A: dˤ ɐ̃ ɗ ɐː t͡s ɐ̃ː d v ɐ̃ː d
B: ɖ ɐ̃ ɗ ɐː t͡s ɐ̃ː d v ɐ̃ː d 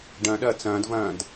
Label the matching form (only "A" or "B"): B